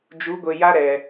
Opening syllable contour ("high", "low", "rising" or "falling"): rising